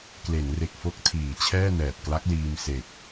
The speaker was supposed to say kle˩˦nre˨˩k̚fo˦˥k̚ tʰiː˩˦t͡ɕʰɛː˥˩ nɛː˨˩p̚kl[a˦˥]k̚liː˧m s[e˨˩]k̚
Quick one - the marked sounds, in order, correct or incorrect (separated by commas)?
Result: correct, correct